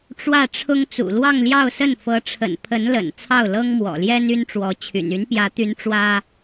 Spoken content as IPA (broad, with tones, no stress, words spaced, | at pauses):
ʈ͡ʂwä˥˩ʈ͡ʂʰʊ˥ŋ t͡sṵ˨˩lwɑ˥˧ŋljɑ˥˧ʊ̯sə˥˩n fɤ˧˥ʈ͡ʂʰə̰˨˩n pʰə˧˥nlə̰˨˩n t͡sʰɑ˥˩ʊ̯lɤ˥ŋmwɔ̰˨˩ljɛ˥n y˥nʈ͡ʂwɔ˧˥t͡ɕʰy̰˨˩n y˧˥npjä˧˥t̪y˧˥n ʈ͡ʂwä˥